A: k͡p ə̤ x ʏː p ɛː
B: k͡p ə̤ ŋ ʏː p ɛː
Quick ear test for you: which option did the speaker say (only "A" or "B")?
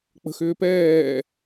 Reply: A